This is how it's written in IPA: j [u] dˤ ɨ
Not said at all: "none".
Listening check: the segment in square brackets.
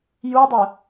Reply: u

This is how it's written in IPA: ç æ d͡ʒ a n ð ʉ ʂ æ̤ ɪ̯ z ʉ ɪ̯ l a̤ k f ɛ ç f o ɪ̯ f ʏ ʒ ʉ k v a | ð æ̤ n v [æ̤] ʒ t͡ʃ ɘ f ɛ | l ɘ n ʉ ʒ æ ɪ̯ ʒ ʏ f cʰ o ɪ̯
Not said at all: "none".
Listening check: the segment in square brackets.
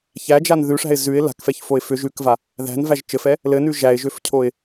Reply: æ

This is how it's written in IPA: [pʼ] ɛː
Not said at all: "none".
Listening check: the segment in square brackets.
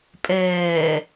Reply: pʼ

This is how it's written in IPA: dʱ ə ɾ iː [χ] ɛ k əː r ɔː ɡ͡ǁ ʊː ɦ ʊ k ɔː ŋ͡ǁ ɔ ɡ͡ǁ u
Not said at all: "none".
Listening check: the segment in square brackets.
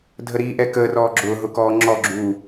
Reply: ʔ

